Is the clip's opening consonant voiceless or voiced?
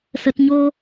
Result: voiceless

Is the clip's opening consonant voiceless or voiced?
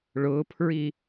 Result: voiced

